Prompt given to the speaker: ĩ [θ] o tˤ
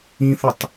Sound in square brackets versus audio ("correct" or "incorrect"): correct